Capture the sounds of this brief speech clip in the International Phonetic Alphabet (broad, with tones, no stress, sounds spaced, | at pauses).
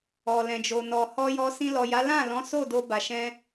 ɔ˨ l ɛ̃˨ d͡ʒ o˨ n ɔ˨ h ɔ˧ j ɔ˧ s ĩ˧ l ɔ˨ j a˨˦ l ã˦˨ l ɔ̃˨˦ s o˦˨ d o˧ b a˨ ʃ ɛ̃˧